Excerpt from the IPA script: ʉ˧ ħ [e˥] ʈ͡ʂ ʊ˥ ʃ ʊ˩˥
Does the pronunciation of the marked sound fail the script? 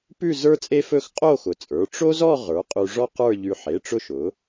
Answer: yes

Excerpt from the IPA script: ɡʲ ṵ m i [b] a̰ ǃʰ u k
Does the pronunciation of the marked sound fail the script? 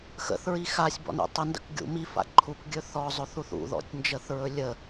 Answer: yes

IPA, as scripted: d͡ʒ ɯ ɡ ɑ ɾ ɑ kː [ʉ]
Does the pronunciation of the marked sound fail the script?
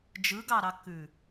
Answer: no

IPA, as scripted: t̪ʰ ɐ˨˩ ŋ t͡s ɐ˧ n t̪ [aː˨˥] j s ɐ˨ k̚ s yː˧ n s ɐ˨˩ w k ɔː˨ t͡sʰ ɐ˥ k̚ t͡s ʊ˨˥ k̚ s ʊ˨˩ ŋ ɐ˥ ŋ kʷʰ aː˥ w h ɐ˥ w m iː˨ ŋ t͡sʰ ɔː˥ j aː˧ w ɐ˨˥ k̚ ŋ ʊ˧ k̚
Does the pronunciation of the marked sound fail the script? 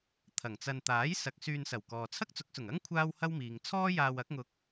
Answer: no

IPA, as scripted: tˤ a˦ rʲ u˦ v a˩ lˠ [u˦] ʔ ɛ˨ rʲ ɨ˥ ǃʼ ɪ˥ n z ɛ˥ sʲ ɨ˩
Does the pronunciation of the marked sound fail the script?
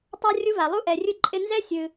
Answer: yes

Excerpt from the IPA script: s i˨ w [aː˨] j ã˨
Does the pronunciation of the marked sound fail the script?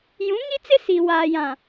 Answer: no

